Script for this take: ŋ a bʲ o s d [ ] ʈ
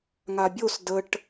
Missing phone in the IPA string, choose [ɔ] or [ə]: ə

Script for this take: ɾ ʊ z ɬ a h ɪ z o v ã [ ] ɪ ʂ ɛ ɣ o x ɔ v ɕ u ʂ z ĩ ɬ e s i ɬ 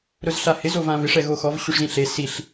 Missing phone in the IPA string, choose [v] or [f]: v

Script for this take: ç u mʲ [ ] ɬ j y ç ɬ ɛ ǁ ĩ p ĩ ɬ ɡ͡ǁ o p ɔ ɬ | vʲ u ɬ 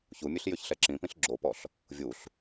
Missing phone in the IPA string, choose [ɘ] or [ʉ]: ʉ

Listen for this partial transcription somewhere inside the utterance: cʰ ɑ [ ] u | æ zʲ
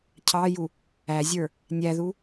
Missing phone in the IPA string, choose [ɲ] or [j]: j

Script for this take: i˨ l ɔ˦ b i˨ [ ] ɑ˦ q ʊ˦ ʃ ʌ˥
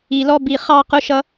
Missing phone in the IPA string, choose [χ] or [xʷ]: χ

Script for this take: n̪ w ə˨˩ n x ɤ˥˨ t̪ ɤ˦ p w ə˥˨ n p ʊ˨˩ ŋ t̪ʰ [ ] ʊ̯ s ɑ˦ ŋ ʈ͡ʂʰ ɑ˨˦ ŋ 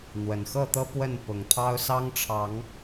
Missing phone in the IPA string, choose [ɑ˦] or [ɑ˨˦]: ɑ˦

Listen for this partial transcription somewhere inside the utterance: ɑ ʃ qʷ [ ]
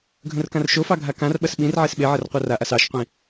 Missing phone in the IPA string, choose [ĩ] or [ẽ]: ĩ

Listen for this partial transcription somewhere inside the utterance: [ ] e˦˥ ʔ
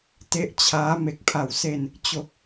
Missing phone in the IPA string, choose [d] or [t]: t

